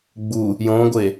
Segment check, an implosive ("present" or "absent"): absent